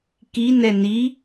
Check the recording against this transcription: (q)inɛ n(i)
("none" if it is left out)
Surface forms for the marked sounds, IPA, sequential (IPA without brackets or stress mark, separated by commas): k, i